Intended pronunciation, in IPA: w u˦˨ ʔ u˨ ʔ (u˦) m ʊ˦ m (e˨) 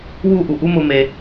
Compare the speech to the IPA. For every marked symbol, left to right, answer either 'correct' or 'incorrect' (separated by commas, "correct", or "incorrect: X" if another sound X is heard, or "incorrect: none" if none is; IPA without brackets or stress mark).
correct, incorrect: e˦